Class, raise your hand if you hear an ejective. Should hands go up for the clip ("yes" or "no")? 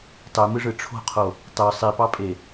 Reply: yes